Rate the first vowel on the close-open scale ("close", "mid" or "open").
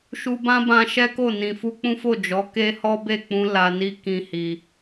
close